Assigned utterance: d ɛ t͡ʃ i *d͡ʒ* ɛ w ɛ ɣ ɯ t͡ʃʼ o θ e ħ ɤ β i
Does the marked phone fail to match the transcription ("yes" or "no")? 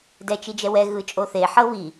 no